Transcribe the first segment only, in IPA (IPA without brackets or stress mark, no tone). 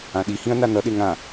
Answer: ã